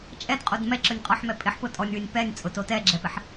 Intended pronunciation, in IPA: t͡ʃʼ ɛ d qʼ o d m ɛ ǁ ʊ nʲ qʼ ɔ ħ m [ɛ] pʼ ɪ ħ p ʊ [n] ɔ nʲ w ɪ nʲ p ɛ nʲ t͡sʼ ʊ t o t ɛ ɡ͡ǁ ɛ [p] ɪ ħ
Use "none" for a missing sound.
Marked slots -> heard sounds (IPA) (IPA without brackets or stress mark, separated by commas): ɛ, tʼ, p